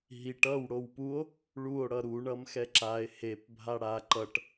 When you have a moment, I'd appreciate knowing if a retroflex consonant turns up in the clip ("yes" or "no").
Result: yes